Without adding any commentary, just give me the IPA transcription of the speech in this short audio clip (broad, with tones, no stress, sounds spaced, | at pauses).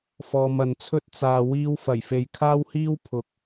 f ɔː˨ m ɐ˨ n t͡sʰ ɵ˥ t̚ t͡s aː˨ w iː˧ w f ɐ˨˩ j f e˨ j kʰ aː˥ w h iː˥ w pʰ ʊ˨ k̚